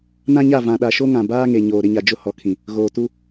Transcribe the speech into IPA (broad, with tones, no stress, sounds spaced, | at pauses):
n ã˦ ɲ a˦˨ v ã˨ ɗ a˨ ʃ o˦ ŋ ã˨ b aː˦ ŋ e˨ ɲ oː˨ ɾ ɪ˦ ɲ a˨ d͡ʒ ʊ˦ h ɔ˨ kʰ ĩ˨ | ɣ oː˨ t u˦